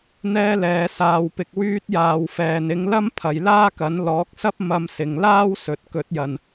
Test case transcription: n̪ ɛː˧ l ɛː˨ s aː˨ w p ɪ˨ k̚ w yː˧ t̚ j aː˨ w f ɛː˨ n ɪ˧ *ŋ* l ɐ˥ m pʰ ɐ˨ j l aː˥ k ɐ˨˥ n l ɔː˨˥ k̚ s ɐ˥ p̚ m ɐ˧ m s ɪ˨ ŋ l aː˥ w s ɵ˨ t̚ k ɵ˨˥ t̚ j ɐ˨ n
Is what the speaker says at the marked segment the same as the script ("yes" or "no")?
yes